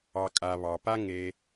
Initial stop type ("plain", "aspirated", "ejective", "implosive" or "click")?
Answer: ejective